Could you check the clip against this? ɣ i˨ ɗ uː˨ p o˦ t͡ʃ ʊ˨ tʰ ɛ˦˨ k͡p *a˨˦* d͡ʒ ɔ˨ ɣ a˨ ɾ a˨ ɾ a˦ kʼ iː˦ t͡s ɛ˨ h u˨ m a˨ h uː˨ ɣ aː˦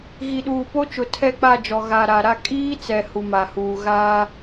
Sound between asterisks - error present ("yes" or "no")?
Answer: yes